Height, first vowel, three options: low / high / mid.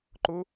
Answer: high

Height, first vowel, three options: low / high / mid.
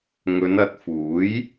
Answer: mid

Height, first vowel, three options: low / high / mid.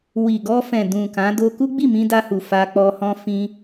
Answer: high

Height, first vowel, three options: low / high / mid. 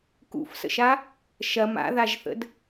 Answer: high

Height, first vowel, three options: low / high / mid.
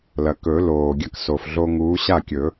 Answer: low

